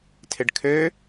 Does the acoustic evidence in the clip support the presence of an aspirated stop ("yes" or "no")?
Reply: yes